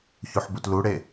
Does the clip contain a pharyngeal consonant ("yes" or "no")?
yes